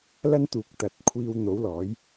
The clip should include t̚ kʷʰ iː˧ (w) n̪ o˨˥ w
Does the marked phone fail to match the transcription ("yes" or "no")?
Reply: no